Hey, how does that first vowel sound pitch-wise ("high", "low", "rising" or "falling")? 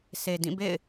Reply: low